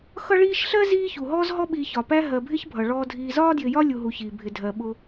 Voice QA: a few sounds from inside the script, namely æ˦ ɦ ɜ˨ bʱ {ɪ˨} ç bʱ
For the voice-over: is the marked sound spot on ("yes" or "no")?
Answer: no